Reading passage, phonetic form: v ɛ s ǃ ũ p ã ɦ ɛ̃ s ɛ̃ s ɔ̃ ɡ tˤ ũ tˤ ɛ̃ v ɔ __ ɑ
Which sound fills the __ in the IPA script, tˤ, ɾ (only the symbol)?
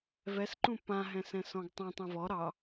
ɾ